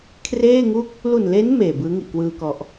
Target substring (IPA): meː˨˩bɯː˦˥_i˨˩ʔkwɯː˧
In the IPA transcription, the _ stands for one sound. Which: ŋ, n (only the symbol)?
ŋ